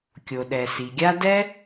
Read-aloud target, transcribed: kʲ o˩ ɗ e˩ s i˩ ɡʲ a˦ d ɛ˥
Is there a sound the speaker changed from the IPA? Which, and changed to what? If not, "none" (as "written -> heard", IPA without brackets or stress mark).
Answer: e˩ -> ɛ˩